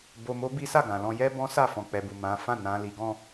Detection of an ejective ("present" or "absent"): absent